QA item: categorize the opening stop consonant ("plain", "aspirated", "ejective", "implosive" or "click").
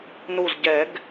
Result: plain